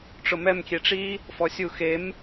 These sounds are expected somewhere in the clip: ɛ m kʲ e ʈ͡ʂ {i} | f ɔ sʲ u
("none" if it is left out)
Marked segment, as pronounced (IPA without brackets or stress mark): i